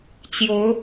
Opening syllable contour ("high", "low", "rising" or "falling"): rising